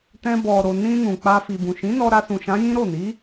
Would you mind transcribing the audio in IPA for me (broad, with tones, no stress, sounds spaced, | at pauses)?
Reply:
t ɛ̃˧ b ɔ˨ ɾ o˨ n ĩ˧ n ũ˨ k͡p a˧ f i˨ b ũ˨ ʃ ĩ˨˦ n ɔ˧ ɾ a˧ s ũ˨ ʃ ã˨˦ j ĩ˦ ɾ o˦˨ n i˨˦